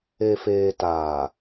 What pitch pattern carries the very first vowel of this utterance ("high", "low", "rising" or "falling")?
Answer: low